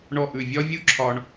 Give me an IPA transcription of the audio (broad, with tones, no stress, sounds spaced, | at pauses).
ɳ ɔ˥˩ ʔ ʉ˥˩ vʲ ɒ˥ vʲ u˥ ǁʰ ɒ˧ ɳ